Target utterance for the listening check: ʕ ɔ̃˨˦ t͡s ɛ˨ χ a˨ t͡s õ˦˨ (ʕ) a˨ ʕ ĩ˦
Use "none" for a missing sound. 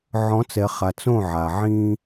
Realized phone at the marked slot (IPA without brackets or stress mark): ʕ